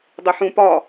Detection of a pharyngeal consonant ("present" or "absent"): present